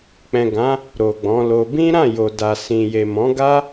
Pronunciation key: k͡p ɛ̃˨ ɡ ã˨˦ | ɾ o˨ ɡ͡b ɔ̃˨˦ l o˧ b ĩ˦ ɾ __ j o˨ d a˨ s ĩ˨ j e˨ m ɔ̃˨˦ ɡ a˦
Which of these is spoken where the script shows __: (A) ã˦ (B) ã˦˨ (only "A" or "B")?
B